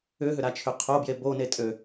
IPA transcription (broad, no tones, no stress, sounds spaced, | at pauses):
ʏ ɦ ʏ ɾ a t͡ʃʰ ʏ qʰ o b j e b o n e tʼ ø